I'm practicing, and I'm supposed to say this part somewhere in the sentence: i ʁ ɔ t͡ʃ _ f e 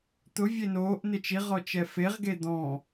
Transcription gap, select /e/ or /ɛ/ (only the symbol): ɛ